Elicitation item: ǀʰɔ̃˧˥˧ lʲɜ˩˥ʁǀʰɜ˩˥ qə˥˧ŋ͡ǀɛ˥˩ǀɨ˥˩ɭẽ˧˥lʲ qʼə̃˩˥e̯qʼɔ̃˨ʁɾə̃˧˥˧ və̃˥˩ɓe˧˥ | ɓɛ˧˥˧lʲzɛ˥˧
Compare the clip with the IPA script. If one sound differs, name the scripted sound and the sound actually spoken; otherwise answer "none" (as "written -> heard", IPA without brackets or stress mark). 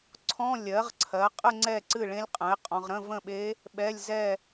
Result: q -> qʼ